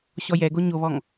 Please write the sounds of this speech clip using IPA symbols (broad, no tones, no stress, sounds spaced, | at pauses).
ɕ ɔ j ɛ ɡ o ɲ o β ɔ ŋ